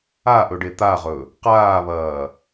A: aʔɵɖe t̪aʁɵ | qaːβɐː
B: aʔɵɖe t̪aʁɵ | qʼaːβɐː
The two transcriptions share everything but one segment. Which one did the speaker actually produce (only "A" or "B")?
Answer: A